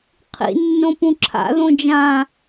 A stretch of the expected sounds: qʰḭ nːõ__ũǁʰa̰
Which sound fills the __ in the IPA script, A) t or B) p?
B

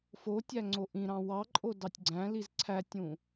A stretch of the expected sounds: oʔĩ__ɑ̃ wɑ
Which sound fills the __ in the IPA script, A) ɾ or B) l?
A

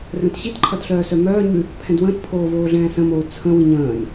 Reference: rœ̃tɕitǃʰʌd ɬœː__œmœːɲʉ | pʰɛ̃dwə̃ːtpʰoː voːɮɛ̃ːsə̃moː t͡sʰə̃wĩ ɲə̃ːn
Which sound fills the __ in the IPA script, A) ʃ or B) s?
B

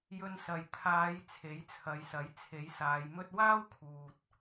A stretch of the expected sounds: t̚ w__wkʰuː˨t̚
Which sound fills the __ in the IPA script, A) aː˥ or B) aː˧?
A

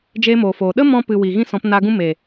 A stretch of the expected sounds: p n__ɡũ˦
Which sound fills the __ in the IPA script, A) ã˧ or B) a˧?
B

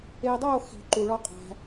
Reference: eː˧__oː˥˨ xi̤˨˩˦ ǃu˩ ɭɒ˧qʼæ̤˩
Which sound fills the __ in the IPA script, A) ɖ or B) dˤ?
B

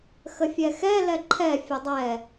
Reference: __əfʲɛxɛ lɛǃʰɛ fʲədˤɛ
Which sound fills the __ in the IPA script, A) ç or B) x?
B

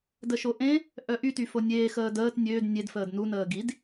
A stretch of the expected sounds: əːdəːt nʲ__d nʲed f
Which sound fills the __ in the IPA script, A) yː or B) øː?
B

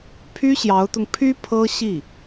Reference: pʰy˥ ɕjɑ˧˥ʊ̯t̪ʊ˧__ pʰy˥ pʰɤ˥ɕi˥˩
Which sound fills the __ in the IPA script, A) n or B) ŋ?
B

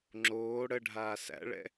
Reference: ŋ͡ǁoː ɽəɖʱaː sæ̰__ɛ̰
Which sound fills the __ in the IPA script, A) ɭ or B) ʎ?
A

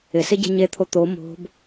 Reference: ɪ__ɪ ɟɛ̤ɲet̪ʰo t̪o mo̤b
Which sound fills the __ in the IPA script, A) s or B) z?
A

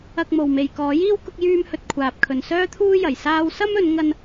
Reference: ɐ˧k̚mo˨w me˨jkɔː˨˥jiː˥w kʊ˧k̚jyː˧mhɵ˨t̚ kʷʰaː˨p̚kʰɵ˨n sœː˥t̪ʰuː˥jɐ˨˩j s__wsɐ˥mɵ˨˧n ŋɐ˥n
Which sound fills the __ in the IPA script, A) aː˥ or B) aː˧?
B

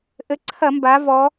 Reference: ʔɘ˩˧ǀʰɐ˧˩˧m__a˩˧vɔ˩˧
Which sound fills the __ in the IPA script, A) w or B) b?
B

